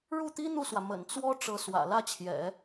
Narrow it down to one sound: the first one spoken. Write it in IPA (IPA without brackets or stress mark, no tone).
ɻ